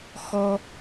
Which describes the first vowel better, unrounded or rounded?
rounded